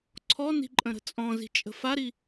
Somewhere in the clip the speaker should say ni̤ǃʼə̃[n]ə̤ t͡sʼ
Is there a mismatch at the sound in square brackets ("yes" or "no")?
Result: yes